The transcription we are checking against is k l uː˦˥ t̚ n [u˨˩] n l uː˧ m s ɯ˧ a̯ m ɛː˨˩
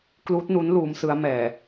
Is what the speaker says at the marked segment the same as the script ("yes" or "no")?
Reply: no